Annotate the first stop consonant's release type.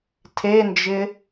aspirated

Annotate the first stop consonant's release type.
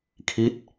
aspirated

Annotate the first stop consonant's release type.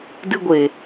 plain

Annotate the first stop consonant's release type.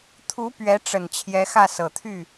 aspirated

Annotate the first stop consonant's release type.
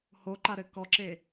click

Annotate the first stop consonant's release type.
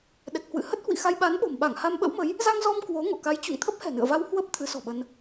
implosive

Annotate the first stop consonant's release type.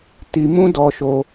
plain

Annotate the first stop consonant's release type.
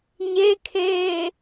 aspirated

